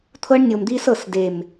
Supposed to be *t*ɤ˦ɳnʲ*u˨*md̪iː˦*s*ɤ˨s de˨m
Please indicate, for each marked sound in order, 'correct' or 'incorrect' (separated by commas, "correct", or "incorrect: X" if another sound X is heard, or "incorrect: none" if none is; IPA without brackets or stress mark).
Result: incorrect: t̪ʰ, incorrect: o˨, correct